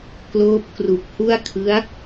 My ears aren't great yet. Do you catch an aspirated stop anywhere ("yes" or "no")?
yes